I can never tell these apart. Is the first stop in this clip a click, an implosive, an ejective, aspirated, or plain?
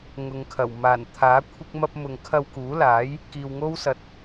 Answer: aspirated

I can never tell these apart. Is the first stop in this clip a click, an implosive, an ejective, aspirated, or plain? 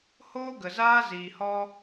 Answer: plain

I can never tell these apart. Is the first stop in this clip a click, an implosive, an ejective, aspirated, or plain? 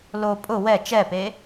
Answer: ejective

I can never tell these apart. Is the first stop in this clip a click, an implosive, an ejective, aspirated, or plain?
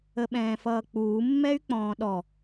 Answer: implosive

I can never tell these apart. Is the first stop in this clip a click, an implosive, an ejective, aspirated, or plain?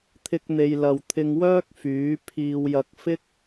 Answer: aspirated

